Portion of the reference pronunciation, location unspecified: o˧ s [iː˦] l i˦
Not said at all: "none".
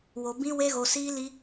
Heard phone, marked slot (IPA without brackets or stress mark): iː˦